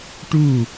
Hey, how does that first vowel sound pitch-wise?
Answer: falling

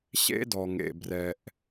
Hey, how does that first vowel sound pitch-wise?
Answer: high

